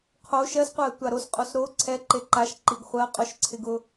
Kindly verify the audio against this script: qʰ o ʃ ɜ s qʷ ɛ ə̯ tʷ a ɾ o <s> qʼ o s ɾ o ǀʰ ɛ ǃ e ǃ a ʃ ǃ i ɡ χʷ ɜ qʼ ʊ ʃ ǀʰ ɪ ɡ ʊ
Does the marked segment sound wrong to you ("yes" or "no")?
no